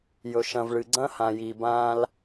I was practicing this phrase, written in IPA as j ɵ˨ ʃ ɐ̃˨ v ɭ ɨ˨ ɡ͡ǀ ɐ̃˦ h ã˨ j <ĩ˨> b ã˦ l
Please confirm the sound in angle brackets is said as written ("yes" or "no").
no